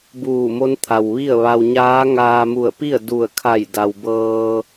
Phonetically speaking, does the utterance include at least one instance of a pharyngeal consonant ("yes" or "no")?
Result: no